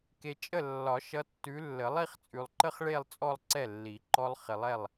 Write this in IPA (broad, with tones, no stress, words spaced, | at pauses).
ke˨t͡ʃʼə˥˩ lːɒ˨˩˦ʃʌ˨˦ tːʉ˨˦lːə˨˩˦ lˠi˥˧χt͡sʼʉ˨lˠ ǃə˥χɭe˥˧lˠ t͡sʼɔ˥˧lˠǀɛ˥˩lːi˨˩˦ ǃɔ˥lˠ χɪ˨lˠɛ˥˩lˠ